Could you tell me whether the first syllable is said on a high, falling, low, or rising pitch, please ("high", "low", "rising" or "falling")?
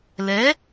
rising